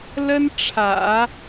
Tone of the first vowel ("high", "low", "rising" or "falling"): high